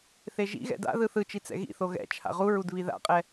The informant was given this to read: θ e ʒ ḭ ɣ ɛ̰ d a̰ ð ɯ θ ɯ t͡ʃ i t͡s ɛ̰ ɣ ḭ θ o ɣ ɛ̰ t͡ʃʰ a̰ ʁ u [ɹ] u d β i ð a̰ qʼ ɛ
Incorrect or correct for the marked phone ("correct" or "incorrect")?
correct